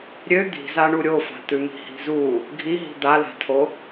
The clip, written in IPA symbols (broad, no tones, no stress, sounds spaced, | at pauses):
ɾʲ ø d̪ i̤ z a ɳ u ɾʲ o f a̤ t̪ ʉ m i̤ h i̤ z u | ɡʱ i ɦ i̤ d̪ a l a̤ tʰ o